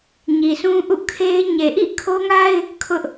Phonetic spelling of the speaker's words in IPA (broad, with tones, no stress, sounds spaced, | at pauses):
ɲ i˨ sʰ ũ˦ ʔ ṵ˦˨ kʰ e˦ ɪ̯ ɲ e˨ ʔ ḭ˦˨ kʰ o˦ ŋ a˦ ɪ̯ | kʰ ʊ˦ ʔ